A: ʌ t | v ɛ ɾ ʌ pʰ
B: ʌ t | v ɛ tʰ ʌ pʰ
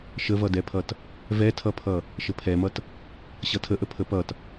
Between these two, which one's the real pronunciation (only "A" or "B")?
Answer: B